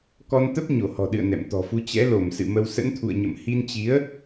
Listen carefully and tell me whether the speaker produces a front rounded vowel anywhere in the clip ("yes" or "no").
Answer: no